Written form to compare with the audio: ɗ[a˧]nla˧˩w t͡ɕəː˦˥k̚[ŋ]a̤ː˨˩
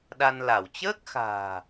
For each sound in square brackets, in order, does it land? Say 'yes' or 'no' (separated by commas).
yes, no